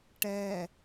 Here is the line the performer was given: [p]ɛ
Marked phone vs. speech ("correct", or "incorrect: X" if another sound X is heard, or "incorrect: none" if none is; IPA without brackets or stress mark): incorrect: ʈ